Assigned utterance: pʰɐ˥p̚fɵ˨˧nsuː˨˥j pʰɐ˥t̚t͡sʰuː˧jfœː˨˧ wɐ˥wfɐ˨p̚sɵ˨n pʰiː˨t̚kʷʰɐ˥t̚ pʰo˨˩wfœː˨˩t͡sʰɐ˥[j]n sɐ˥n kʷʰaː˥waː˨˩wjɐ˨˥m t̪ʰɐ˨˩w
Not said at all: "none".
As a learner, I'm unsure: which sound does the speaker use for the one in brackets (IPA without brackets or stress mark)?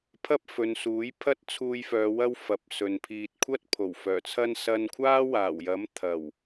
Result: none